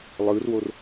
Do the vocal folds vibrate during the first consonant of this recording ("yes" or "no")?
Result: yes